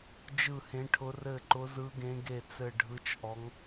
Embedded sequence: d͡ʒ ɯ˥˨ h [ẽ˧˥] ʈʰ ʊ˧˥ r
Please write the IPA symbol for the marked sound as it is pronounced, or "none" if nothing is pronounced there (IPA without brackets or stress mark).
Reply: ẽ˧˥